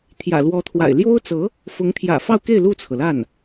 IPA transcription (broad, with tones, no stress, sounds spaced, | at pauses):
t̪ʰ j ä̰˨˩ l w ɔ˧˥ t̪ʰ w a̰˨˩ ɪ̯ l j o˥ ʊ̯ t͡s ɤ˧˥ | f ʊ˧˥ ŋ t̪ʰ j ä̰˨˩ f ɑ˥˧ ʊ̯ k e˥˧ ɪ̯ l u˥˩ t͡sʰ ɤ˩ l a˥˩ n